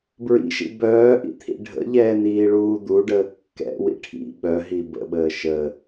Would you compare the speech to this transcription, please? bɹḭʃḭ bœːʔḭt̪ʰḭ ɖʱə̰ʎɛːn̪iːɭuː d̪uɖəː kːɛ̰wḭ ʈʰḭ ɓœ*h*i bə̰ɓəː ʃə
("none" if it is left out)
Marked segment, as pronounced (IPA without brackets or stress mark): ɦ